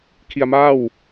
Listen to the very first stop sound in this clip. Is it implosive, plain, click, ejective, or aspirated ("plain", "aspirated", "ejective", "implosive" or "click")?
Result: aspirated